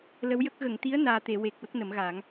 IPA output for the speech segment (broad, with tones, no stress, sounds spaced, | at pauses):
l ə˧˥ w j ə˦˥ k̚ ɣ ə˨˩˨ ŋ t̪ i˧˥ ə̯ n aː˨˩ t̪ e˨˩˨ w e˨˩ k̚ w ə˦˥ k̚ n ə˨˩˦ m ɣ aː˨˩˦ ŋ